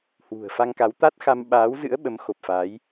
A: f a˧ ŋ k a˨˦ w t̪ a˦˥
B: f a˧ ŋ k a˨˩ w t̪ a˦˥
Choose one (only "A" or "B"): A